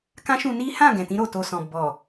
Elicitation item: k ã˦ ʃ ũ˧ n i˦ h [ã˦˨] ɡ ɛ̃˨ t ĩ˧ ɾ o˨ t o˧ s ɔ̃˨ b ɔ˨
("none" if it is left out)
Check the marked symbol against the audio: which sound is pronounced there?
ã˦˨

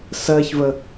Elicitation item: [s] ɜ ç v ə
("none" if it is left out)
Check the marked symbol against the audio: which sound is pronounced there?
s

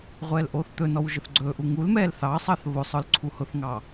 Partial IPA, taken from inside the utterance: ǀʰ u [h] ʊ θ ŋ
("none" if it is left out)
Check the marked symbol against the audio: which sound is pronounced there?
h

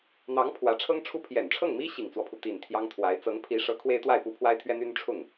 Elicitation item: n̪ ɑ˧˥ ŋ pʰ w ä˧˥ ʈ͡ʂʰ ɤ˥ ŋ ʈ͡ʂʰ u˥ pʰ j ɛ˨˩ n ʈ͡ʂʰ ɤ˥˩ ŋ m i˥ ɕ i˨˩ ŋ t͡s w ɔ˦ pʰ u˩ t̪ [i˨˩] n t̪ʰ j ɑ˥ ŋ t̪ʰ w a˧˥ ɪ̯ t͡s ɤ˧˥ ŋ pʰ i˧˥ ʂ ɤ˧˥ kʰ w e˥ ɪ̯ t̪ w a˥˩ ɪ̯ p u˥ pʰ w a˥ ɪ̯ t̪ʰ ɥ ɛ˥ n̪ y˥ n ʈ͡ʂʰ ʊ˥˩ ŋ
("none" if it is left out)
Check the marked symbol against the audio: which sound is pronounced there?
i˨˩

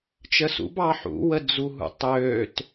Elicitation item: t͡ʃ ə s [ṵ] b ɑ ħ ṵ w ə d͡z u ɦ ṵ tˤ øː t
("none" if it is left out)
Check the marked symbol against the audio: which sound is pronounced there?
ṵ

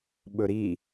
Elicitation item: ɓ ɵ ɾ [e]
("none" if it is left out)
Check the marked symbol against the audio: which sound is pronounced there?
i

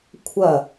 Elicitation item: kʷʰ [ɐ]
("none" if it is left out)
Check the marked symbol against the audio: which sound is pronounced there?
ɐ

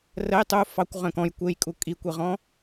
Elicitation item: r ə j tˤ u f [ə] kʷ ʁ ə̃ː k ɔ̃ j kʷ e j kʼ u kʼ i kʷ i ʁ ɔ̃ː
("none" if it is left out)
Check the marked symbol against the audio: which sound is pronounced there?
ɑ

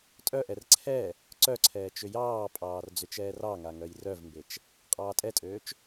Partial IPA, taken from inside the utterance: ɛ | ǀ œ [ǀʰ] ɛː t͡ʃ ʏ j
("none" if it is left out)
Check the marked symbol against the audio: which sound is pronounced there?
ǀʰ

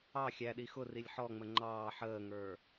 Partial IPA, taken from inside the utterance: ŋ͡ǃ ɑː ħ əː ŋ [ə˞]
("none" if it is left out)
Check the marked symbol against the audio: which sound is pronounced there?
ə˞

